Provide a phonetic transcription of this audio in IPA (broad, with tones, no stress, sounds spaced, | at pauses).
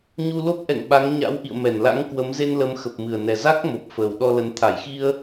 ɲ u˧ l o˦˥ p̚ ʔ ɛ̰˧˨ ŋ ɓ a˨˦ ŋ ɲ a̰˧˥ w ʔ ḭ˧˨ ə̯ m ɛ˧˩ n l a̰˧˥ ŋ k w ə˨˦ m z e˧ n l ə˨˦ m x ə˨˩ p̚ m ɨ˨˩ ə̯ n ɛ˨˩ z a˦˥ k̚ m o˨˩ p̚ f əː˨˩ w ɗ ɔ˧ l ə˨˦ n t̪ʰ a˧˩ j x i˧ ə̯